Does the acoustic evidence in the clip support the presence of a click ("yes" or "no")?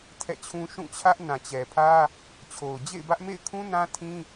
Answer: no